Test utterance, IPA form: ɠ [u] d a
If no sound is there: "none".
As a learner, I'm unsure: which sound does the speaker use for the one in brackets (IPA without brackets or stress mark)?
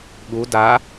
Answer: u